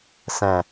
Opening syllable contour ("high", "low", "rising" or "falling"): low